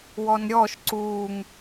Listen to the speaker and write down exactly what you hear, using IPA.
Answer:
wɔnɾʲɔʃ ǀuŋ

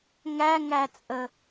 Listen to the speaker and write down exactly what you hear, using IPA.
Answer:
ŋæŋæt͡sʼə

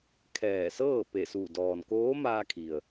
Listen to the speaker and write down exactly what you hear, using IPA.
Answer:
kʰɛː˧˩sɤː˥˨ pe˧˩su˧˩ dɔː˩nkoː˧˥maː˧kʰi˩ə̯

